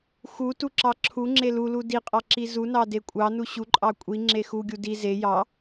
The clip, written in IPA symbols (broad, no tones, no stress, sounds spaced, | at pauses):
x u t u ǁ ɑ ǁʰ u ŋ͡ǁ e l u l u d i qʼ ɑ ǁ i z u n ɑ d e kʷʼ ɑ n u ɕ u ǃʼ ɑ kʷʼ i ŋ͡ǁ e x u ɡʲ u d i z e j ɑ